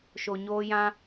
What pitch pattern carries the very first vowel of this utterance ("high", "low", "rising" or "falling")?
low